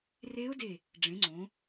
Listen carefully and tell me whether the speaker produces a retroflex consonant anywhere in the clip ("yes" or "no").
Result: yes